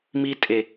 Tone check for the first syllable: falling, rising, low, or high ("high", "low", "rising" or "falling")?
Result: low